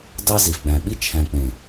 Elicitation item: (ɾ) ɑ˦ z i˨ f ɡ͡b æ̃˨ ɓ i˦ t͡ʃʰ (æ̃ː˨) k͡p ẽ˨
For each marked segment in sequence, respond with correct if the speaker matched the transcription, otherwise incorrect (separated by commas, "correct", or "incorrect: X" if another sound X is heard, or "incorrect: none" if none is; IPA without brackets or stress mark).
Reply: incorrect: d, incorrect: æ̃˨